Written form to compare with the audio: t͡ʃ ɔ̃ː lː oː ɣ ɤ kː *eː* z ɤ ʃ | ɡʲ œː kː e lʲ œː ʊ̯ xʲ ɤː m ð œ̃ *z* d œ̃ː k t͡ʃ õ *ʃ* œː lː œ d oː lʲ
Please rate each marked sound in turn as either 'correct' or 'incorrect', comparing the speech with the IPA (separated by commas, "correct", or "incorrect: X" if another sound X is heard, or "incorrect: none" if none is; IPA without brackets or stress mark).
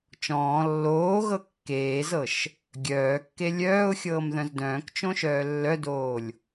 correct, correct, correct